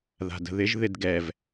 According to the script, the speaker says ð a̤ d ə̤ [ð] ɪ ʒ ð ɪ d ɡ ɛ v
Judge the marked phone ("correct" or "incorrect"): correct